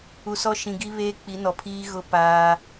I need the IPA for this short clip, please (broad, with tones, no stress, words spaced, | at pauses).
u˨sɔ˦ ʃĩ˨ ɡi˦βeː˦ k͡pi˨˦nɔ˨pʰiː˦ ɣʊ˦ paː˦